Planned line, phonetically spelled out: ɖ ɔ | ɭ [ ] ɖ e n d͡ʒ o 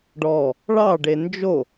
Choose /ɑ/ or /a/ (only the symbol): ɑ